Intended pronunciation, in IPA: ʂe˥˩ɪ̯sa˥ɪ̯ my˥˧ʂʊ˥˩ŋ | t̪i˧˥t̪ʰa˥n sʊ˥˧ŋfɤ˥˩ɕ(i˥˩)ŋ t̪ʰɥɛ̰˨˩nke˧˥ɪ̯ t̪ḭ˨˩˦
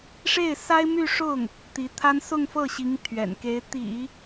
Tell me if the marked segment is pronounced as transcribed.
no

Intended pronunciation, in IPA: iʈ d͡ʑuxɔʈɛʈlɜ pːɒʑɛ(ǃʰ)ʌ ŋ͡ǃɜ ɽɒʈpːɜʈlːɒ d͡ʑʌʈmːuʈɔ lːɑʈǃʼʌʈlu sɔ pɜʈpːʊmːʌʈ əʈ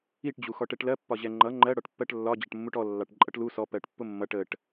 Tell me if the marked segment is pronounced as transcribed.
no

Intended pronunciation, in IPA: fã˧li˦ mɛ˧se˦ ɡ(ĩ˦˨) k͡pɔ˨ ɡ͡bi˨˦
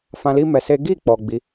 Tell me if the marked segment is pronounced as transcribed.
no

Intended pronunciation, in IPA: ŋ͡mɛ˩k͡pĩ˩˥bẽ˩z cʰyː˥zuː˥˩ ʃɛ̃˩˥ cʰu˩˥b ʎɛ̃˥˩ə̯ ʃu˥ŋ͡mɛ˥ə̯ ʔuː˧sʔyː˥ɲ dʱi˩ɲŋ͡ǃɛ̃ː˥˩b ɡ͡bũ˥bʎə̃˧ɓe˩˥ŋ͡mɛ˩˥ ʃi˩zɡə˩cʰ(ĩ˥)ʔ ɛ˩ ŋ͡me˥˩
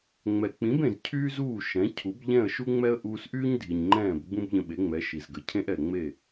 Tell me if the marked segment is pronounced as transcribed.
no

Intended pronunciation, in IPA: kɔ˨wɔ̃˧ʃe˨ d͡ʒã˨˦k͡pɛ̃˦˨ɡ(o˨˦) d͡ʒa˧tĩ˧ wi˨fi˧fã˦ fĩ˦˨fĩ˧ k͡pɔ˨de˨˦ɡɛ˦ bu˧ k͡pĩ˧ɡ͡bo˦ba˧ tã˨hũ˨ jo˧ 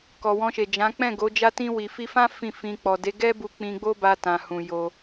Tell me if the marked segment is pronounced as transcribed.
yes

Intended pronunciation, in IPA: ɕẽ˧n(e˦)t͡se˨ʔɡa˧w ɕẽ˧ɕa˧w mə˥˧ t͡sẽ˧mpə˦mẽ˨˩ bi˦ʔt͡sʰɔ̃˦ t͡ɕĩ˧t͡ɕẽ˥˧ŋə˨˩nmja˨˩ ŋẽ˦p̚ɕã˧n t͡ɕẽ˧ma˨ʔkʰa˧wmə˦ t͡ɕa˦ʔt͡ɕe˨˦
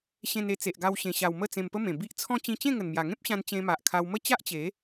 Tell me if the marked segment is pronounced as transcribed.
no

